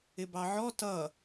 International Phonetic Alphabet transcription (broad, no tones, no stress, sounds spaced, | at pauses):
ɪ b ɑ ʕ ɔ t ʌ